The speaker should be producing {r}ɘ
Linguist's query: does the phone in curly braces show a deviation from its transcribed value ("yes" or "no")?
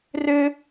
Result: no